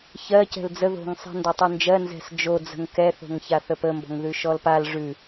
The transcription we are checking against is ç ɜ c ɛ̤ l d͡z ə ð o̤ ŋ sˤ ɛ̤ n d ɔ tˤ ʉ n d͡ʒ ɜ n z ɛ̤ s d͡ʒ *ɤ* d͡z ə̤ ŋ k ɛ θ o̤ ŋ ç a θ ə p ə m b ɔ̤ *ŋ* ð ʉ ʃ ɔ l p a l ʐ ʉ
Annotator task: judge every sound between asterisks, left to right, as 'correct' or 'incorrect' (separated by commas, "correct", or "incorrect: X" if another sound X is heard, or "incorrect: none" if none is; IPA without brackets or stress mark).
incorrect: o, correct